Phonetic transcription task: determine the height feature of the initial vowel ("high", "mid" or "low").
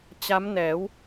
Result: low